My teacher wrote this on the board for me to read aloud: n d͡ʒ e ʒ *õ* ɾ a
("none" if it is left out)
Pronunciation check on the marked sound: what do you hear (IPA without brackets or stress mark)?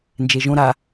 õ